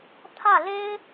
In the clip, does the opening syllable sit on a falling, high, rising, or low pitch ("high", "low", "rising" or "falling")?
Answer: falling